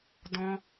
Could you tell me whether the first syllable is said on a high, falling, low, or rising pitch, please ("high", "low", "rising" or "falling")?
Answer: high